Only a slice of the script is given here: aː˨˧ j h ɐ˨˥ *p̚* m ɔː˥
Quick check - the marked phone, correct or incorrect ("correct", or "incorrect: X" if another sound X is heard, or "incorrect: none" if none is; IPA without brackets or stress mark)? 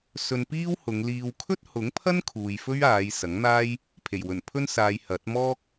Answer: incorrect: t̚